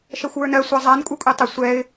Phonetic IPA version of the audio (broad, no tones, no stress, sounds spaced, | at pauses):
ʃ ɜ xʷ w ə˞ n ɜ sʷ a zˤ a n kʷʼ ə˞ kʷʼ ɛ tˤ ə sʷ ɛ ɪ̯